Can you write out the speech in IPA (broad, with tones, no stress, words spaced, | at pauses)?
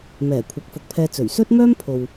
mɛː˨˩ kʷʰɐ˨˥k̚fʊ˨k̚pʰɛː˧ t͡sɵ˨˩ɥsɵ˥t̚mœː˥m pʰo˨w